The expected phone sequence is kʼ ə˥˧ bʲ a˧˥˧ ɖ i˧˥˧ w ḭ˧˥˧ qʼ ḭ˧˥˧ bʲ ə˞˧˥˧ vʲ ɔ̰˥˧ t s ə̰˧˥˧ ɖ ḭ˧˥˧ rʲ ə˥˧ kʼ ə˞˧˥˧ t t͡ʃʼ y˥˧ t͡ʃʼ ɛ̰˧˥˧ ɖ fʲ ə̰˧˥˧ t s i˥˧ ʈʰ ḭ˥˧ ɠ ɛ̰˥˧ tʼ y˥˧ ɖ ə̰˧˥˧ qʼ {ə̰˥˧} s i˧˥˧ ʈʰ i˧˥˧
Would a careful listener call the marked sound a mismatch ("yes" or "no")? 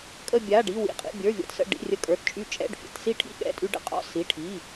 yes